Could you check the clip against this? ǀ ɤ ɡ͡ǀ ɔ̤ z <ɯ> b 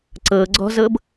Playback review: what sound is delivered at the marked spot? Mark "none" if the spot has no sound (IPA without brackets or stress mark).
ɤ